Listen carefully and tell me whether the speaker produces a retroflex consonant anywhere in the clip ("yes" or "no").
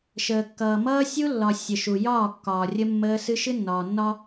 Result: no